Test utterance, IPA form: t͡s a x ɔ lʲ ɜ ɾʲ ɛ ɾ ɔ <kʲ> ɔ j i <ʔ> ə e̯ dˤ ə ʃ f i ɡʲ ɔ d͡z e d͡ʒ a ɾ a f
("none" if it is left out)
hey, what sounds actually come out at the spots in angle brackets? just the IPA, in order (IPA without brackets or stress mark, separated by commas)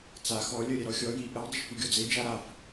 xʲ, ʔ